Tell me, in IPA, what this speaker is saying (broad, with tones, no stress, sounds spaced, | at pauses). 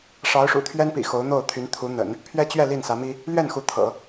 ʂ ɑ˧˥ ʊ̯ ʂ ṵ˨˩ t̪ʰ ɥ ɛ˥ n p ḭ˨˩ x o˧˥ ʊ̯ n̪ o˥˩ ʊ̯ t̪ʰ y˧˥ n t̪ʰ u˧˥ n̪ ə̰˨˩˦ n | pʰ ɥ ɛ˥ t͡ɕ ɥ ɛ˥˧ l i˥˩ n s ä˧˥ m i˥ | l ɥ ɛ˥˩ n x u˧˥ t̪ʰ ɤ̰˨˩˦